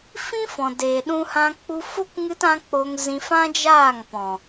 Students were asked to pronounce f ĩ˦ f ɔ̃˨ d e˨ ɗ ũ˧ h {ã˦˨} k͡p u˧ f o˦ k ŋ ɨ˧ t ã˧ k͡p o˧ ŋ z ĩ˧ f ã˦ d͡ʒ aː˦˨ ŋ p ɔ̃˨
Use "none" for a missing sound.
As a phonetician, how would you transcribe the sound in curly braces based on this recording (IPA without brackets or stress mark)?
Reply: ã˧